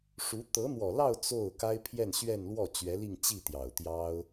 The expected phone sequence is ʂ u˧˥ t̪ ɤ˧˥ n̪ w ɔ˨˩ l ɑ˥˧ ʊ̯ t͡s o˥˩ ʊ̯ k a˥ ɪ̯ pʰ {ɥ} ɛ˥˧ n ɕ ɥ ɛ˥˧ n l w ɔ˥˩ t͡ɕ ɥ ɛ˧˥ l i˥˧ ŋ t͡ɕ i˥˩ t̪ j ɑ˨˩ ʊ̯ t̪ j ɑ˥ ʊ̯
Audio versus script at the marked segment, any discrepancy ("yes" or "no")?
yes